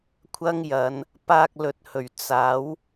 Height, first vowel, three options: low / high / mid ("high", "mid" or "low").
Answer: low